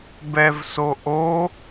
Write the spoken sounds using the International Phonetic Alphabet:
b ɛ v s o ʔ o

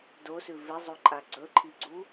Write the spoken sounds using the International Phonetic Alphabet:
d o s ʉ v e zˤ u ǃʼ a ɡ͡ǀ ɵ ǃʰ i ɡ͡ǀ u

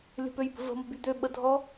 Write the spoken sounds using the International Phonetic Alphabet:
lʲ ə̤ p ø j b ə̤ v ə̤ m ə̤ b y d̪ ø ɓ ə dʱ ɔ

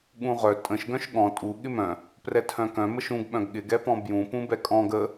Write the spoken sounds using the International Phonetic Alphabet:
ɠ ũ ʁ œ tʼ ə̃ ʃ ɡ œ̃ ʃ ɠ ɔ̃ tʼ u ɠ ɪ m œ̃ | p r ɛ tʰ œ̃ k œ̃ m ə ʃ ũ ɡ ɓ œ̃ ɡ ɠ ɪ ɡ ɛ p ɔ̃ b j ũ p ũ b ɛ kʼ ɔ̃ ɡ ə

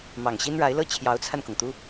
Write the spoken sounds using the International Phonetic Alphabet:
m ɑ˨˩ ŋ ɕ i˥ n ɻ a˧˥ ɪ̯ l ɤ˥˩ t͡ɕʰ j ɑ˧˥ ʊ̯ t͡sʰ a˧ n k ʊ˩ ŋ t̪ u˥

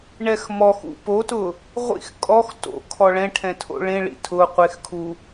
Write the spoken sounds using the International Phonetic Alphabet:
ɳ ɛ x m ɔ x ṵ p o t ʊ | ʁʷ ḭ x kʼ ɔ x t o̰ kʰ ɔ ɭ ɛ̃ ʈʰ ɛ̃ tʰ o̰ ɭ ẽ ɭ ḭ tʰ ʊ qʷ e x kʰ u

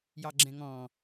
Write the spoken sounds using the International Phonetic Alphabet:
j ɑ ɡ͡ǁ ɛ̃ ŋ ɔ̃

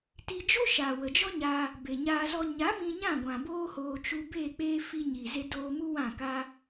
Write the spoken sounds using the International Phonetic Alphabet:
t i˧ d͡ʒ o˦ ʃ aː˨ w ə˨ d͡ʒ ɔ˦ ɲ aː˧ | b e˨ ɲ aː˧ z ɔ˧ ɲ a˨˦ m ĩ˧ ɲ ã˦˨ ɡʷ ã˨ b oː˦ h oː˧ t͡ʃ u˧ b eː˦˨ k͡p eː˦ f i˧ ɲ i˨ z e˧ d oː˧ m u˦ w ã˦˨ k a˦

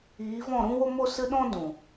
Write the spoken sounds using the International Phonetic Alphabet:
iː˨˦ v ɔ̃˦˨ ɾ ũ˦ w o˦ m o˦ s ɨ˦ ɗ ɔ̃˦ d ũ˨

